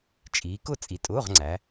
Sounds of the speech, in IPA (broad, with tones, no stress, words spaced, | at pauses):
t͡ʃʼiː˨˦kʊ˥˨ t͡sʼi˨˦tʼʊː˧˥˧ʁ ŋ͡ǀæ˨˦